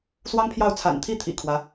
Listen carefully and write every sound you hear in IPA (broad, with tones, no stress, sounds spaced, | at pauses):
s w ɑ˥ ŋ pʰ j ɑ˥˩ ʊ̯ t͡sʰ a̰˨˩ n t̪ʰ i˥˩ t̪ʰ ḭ˨˩ kʰ w ä˧˥